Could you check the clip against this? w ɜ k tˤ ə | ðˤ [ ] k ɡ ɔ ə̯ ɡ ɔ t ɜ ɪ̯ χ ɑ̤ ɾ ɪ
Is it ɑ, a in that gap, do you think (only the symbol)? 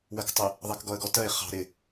ɑ